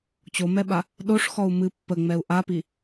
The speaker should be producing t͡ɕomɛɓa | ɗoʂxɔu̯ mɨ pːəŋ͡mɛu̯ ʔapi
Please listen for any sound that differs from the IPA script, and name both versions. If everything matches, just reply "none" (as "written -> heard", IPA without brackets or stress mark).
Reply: none